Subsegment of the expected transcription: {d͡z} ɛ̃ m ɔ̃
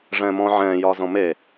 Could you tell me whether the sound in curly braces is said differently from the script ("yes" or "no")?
yes